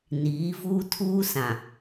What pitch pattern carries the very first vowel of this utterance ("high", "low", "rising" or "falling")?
rising